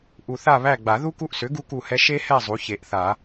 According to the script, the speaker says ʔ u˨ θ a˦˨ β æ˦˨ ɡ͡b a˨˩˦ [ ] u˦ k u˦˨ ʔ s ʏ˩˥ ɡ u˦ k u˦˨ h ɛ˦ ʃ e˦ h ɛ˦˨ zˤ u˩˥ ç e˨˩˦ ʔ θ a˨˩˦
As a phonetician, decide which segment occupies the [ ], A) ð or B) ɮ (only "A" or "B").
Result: A